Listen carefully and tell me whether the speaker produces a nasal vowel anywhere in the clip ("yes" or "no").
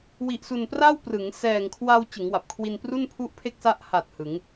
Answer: no